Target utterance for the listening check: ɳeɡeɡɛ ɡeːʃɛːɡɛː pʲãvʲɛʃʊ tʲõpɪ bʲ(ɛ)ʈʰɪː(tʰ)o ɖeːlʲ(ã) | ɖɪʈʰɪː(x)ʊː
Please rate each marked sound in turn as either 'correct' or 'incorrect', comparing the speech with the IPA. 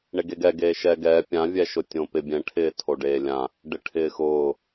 incorrect: ɛ̃, correct, correct, correct

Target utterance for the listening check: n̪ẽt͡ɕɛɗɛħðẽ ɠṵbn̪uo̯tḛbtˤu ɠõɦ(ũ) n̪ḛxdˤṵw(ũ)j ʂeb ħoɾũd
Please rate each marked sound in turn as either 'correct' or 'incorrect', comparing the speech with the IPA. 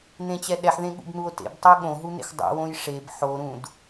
incorrect: u, incorrect: õ

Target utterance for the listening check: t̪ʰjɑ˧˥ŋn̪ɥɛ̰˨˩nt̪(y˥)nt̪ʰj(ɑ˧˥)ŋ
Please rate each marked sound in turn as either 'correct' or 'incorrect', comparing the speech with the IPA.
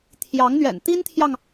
incorrect: i˥, incorrect: ɑ˨

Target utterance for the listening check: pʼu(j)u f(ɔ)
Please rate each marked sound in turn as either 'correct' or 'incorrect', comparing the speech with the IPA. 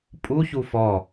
incorrect: ç, correct

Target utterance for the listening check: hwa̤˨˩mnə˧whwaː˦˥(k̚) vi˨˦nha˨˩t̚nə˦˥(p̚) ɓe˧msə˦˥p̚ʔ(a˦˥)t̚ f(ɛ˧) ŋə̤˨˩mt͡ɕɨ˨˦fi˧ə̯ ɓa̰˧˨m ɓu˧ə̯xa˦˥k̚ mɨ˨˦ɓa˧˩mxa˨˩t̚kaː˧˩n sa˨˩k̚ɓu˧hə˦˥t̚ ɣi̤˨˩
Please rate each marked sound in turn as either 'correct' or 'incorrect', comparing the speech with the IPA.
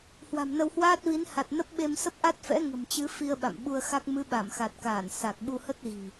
incorrect: t̚, correct, correct, incorrect: ɛ̰˧˥

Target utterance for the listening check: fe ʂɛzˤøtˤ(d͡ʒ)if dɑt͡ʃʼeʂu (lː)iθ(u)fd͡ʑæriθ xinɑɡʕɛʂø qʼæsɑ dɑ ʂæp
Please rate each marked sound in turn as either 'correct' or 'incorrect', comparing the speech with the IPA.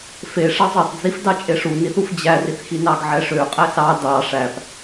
incorrect: d͡z, incorrect: n, correct

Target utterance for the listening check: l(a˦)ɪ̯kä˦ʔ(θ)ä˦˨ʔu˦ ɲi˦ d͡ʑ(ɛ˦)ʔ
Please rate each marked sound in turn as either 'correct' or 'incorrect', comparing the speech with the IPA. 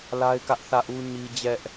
correct, correct, correct

